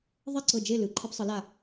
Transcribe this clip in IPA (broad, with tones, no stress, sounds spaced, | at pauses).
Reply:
ðˤ e˥˨ ǀ ɤ˧˩ d͡ʒ e˥˨ l ɯ˩˧ ǃʰ e˧ p sˤ ɯ˩˧ l a˧˩